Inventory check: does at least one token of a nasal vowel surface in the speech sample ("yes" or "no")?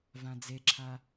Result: yes